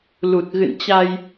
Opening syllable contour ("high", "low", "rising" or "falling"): low